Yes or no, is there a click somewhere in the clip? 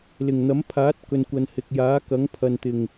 no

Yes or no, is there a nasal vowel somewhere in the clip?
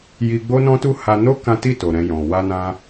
yes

